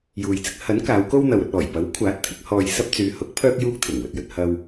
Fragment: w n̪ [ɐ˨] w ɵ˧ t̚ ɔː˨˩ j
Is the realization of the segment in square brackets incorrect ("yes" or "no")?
no